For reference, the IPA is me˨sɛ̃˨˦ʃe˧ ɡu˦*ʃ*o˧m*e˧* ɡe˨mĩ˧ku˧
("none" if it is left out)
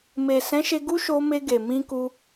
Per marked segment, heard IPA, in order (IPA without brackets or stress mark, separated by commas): ʃ, e˧